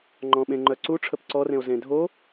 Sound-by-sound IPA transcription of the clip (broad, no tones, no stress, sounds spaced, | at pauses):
ŋ͡ǃ ɔ̃ ɓ ẽ ŋ͡ǃ œ ǀ u ʈ͡ʂʰ ə p ǀ ɔ r ẽ o̯ z ẽ dʱ o